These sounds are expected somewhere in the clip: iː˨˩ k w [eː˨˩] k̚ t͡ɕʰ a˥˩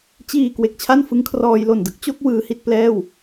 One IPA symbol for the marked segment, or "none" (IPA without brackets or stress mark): e˨˩